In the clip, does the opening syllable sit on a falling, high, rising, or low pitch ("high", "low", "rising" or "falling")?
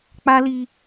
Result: high